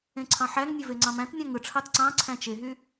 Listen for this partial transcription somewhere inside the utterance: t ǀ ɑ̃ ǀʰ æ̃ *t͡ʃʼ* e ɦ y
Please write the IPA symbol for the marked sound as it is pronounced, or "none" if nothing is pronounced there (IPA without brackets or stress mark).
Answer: t͡ʃ